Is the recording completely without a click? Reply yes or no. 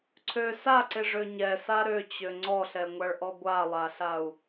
no